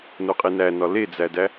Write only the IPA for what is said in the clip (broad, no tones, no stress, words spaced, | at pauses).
noqʼinæ nɒled͡zædæ